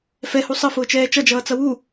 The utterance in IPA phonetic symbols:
fɛhu sˤəfʊːt͡ʃɛː t͡ʃʌd͡ʒʌːt͡sʌ wu

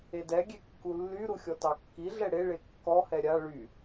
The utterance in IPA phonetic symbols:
edɛɡʲe kːulːyɾu xʲɔtɑkːiɮɛ ɽeɭe kːɔhɛ ɾʲa ɭy

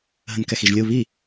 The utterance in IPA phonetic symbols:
ɦə̃nkɛxiʒlʲu βi

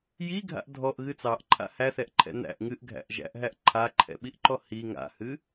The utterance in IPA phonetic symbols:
jiɡʱa̰ʔ dʱɔʔɣɨ t͡sɑʔǃʰa̰ hæθɛʔǃʰɛ̰ n̪æ̰ʔ ŋɨʔɡʱæ̰ʔ ʒæ̰ʔɦæʔ ǃʰaǃʰɛ̰ɓiʔǃɔ hi ŋa̰hɨ

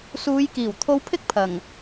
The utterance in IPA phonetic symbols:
suː˨˧jkiː˨˩wt̪ʰo˧wpʰɪ˥k̚ pʰɐ˨˩ŋ

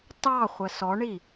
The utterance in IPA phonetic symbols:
tɑ χʷɜsɔɳi

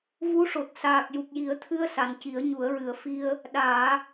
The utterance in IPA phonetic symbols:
vu˧˥ʂo˨˩t̚ saː˨˩k̚ju˨˩k̚ji˨˩˦ə̯t̪ʰɨ˧ə̯ sa˨˩nci˨˩˦ə̯ɲu˨˩˦ə̯ɹɨ˨˩ə̯ fi˧ə̯ | ɗaː˨˩˦

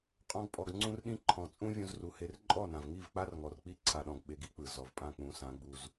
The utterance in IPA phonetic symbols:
qʼɔ̃˧ɡpʼɔ˨ɡ ŋ͡ǀũ˧rɗĩ˧ ǃʰɔ̃˨t͡sʼũ˦ vʲũ˧zru˨he˧r ǃʼɔ˦˨nã˨v ŋi˦˨vk͡pa˦rŋɔ˨rk͡pi˦˨ ǀʰa˨ɗɔ̃˨ɡ ɓe˧ɡi˦k͡pɯ˨ zɔ˨vpʼã˦˨k͡pũ˨˦sã˨˦ ɡ͡bu˨z

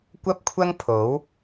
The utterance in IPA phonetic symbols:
kʷɐ˥p̚kʷʰɐ˥ŋpʰo˨˥w

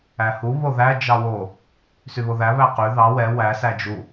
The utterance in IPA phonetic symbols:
æhu βoðæ d͡ʒɑwo | syβoðæ βæqy ðɑ wɛ wæ sæd͡ʒu

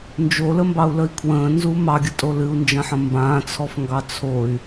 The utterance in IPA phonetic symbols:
nd͡ʒoləmbɑu̯ləi̯ kʰwə̃ːnzu mɑɡʲətʼo lɨu̯nd͡ʒɐ̃ħɐ̃ mbãːt͡sʰɔfŋɡɑ t͡sʰoy̯

